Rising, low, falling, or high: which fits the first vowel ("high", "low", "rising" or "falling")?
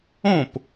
falling